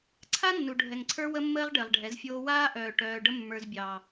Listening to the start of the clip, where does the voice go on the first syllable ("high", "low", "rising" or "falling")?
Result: high